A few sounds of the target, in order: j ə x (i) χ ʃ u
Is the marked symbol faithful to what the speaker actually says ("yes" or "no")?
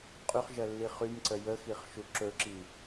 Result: yes